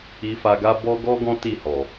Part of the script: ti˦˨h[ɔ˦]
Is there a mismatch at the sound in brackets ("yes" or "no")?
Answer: yes